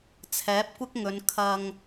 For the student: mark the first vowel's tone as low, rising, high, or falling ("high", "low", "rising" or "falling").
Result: rising